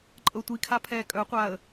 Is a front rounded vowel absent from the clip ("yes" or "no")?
no